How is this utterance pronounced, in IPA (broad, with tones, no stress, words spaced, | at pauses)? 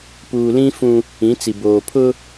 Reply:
puː˨lĩ˦fũ˦ | ĩ˨˦t͡si˨ boː˨pʰʊ˦